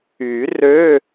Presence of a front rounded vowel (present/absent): present